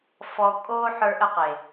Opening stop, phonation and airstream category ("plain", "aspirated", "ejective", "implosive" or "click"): ejective